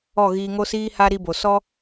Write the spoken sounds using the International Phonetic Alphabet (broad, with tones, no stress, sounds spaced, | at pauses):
ɔ˦˨ ɣ iː˧ ŋ o˦ s iː˦ h a˦ ɾ i˦ b o˨ s ɔ˦